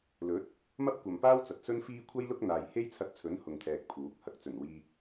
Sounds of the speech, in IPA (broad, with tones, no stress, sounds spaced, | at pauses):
l ɵ˨˥ t̚ | m ɐ˥ p̚ kʷ ɐ˨ m p aː˥ w t͡s ɐ˨ t̚ s ɵ˥ n f iː˥ kʷʰ ɐ˥ j l ʊ˥ k̚ n̪ aː˨ j h e˥ j t͡sʰ ɐ˧ t̚ t͡sʰ ɵ˨˥ n h ʊ˨ ŋ t̪ʰ ɛː˨ k̚ pʰ uː˨˥ k̚ h ɐ˨˥ k̚ t͡s ɵ˨˩ n w iː˧ k̚